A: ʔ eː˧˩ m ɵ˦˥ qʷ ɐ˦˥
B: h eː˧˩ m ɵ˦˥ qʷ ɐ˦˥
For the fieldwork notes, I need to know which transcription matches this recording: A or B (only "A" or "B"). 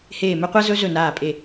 B